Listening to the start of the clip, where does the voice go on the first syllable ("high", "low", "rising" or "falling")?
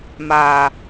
low